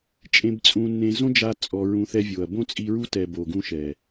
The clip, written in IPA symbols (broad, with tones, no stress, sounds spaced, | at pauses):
t͡ʃʼ ẽ˧ b t͡sʼ ũ˧ nː ẽ˧ z õ˦ d͡ʒ a˧ t͡sʼ ɔ˧ ɹ ũ˧ θ ɛ˦ vʲ o˨ ɐ̯ b õ˦ t͡sʼ i˧ ɹ u˦ t ɛ˨ b o˨ ɡ ũ˧ ʃ ɛ˨